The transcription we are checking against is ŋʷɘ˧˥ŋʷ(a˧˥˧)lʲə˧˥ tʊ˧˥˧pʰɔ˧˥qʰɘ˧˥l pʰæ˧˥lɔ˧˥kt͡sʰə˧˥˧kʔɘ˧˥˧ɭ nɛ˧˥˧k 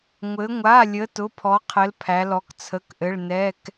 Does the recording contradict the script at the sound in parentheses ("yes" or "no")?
no